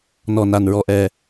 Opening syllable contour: low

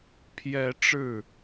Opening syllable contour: rising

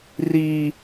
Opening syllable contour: high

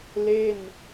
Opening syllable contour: falling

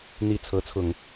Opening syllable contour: falling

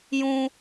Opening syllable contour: high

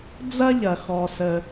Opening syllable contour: high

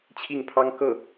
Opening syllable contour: falling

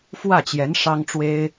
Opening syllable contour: falling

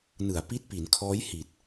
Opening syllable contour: low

